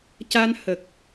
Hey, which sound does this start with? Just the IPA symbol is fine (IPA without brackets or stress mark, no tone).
c